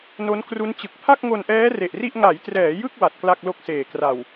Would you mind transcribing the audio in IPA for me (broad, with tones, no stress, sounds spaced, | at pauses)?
n o˦˥ n k r u˦˥ n t͡ɕ ɯ˨˩ k̚ pʰ a˥˩ k̚ ŋ o˧ n ʔ ɛː˦˥ r e˨˩ ʔ r i˥˩ ʔ ŋ a˩˦ j t r ɛː˩˦ j ɯ˥˩ k̚ w a˨˩ t̚ k l a˥˩ k̚ l o˥˩ k̚ s eː˨˩ k r a˨˩ w